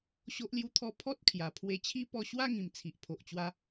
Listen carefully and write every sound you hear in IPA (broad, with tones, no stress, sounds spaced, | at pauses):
ɕ o˦ ʔ l j u˦ t̪ʰ ɔ˦ pʰ ɔ˦ t̚ kʰ j a˨˩ pʰ w e˧ t͡ɕʰ i˦ p ɔ˧ ɕ w a˥˧ ŋ ĩ˨˩ m t͡sʰ i˨ ʔ pʰ o˨ ʔ t͡ɕ w a˧